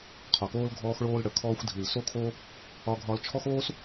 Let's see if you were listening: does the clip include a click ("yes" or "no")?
no